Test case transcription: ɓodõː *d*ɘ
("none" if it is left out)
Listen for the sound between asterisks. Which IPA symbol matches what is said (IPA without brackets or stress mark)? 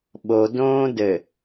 d